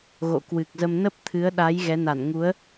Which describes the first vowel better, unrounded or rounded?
rounded